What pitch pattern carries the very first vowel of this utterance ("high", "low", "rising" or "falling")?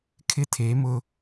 high